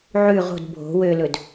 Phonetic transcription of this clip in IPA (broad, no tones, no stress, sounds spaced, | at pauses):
ʕ ʉ ʁ o̤ d bʱ o̤ w ø l ɵ d